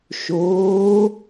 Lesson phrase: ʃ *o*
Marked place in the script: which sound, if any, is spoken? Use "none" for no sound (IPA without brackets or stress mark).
oː